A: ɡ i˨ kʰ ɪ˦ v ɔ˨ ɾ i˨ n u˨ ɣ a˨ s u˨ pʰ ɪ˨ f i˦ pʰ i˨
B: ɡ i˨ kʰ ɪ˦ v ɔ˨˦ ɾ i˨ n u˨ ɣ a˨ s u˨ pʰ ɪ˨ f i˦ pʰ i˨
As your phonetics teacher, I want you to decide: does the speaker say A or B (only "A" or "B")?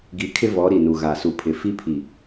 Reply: B